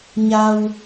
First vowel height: low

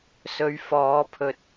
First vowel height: mid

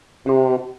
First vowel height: mid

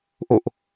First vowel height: mid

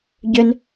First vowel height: high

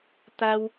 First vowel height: low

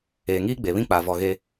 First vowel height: mid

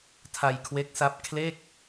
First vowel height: low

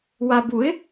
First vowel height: low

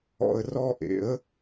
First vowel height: mid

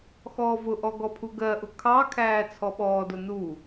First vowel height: mid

